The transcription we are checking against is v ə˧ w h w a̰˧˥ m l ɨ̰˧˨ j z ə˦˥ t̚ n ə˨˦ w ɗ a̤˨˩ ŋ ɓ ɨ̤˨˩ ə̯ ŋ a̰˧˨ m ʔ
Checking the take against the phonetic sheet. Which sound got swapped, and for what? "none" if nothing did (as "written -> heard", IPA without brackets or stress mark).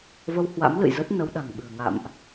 none